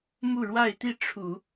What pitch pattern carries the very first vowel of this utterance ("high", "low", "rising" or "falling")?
falling